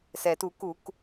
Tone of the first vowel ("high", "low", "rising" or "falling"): low